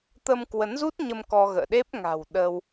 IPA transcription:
t̪ ə˧ m k w ə˨˦ n z u˦˥ t̚ ɲ ə˧ m k ɔ˧ ɣ ə̰ː˧˨ ɗ e˦˥ p̚ ŋ a̤˨˩ w ɗ ə˧ w

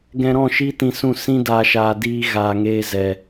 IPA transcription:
ɡ ɛ̃˧ ɾ ɔ̃˦˨ ʃ iː˦ t ĩ˧ s ũ˦˨ s ĩ˦ d aː˧ ʃ aː˧ d iː˧ ɣ aː˧ ŋ eː˦ z ɛ˧

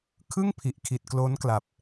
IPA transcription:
kʰ ɯ˥˩ ŋ pʰ i˨˩ ʔ kʰ i˨˩ t̚ k l o˦˥ n k l a˨˩ p̚

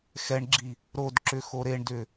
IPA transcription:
x ɛ ɳ ɡ͡ǁ i | ɾ o d ǁ ʏ x o ɾ e ɳ d ʏ

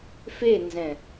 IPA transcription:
f e n z ɛ̃

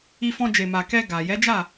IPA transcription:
i˧ f ɔ̃˧ d͡ʒ e˨ m a˨ k ɛ˧ ɡ a˨ j ɛ˨˦ d͡ʒ a˦˨

